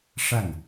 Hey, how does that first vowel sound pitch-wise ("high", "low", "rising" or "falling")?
falling